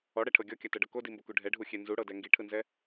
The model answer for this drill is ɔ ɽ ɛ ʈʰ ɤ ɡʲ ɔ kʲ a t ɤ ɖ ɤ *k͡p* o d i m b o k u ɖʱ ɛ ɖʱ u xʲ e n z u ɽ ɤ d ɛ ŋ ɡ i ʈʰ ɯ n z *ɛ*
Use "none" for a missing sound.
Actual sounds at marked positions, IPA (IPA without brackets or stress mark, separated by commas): k, ɛ